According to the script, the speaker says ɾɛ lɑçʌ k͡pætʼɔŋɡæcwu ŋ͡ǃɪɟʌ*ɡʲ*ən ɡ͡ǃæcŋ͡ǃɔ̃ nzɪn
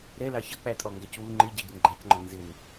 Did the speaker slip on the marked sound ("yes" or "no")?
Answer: yes